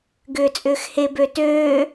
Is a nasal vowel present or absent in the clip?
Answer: absent